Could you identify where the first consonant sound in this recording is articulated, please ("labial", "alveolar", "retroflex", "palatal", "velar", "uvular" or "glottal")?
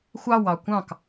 velar